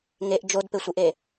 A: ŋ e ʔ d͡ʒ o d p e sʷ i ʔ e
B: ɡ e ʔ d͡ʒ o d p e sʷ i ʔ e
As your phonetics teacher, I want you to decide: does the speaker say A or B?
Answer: A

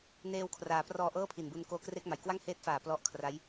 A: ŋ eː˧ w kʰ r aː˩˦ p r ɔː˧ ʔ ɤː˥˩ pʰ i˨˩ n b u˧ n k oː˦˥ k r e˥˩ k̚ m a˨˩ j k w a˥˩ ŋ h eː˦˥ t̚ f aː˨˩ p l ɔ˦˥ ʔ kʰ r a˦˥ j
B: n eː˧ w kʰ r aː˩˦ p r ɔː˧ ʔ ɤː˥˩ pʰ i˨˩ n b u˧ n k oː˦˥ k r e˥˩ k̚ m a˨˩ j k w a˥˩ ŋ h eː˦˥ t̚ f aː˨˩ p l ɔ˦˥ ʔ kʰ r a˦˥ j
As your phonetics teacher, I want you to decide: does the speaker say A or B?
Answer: B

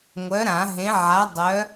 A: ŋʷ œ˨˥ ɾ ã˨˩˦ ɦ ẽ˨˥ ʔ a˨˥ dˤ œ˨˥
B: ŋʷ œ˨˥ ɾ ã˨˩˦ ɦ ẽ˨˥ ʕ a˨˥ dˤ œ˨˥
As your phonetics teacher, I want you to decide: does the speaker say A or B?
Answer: B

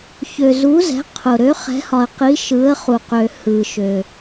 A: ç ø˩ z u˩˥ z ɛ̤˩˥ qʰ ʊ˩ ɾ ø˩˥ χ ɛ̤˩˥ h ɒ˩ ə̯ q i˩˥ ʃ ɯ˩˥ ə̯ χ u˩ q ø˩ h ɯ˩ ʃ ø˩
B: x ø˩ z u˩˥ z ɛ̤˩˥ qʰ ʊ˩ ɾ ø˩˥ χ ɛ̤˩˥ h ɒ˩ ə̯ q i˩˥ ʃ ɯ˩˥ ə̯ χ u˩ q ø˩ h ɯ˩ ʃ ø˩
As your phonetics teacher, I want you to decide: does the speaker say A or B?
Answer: A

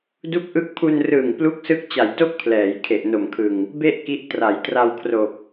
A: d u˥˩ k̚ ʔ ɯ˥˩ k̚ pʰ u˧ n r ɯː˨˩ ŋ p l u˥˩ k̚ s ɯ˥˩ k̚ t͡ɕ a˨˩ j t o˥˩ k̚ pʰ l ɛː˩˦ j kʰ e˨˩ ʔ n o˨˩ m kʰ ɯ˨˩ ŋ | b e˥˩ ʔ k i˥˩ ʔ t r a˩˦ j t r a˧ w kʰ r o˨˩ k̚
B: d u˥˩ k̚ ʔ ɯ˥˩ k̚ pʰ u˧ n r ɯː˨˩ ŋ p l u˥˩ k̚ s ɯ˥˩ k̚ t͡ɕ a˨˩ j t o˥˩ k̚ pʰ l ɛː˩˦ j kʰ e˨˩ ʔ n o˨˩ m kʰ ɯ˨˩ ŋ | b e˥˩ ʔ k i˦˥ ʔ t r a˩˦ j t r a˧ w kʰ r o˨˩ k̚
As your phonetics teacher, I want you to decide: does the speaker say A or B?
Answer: B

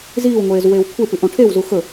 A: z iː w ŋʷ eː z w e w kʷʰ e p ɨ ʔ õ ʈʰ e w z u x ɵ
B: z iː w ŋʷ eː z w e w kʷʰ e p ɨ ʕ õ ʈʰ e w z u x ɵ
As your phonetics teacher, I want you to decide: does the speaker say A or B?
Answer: A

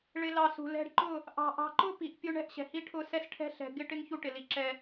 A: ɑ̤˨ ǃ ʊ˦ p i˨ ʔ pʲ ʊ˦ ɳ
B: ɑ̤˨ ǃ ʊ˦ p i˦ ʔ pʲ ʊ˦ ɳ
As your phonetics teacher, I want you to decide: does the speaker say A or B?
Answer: A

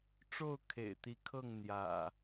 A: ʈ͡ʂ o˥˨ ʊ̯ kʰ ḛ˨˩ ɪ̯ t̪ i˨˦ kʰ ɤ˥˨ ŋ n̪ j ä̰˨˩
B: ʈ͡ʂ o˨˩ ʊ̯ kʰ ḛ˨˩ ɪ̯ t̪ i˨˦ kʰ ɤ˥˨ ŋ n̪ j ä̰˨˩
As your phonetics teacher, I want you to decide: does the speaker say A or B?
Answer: A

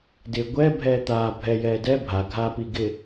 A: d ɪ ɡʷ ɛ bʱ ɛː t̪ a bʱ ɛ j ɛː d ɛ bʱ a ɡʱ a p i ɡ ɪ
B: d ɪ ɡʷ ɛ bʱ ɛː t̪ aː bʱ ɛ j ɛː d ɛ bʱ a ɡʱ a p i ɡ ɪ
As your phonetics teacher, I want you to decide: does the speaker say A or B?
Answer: B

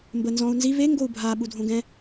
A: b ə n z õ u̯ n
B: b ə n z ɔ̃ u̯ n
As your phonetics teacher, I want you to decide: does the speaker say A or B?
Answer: B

